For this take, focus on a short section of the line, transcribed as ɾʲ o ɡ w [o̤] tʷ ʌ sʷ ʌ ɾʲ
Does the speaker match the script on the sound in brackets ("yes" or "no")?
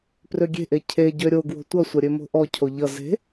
yes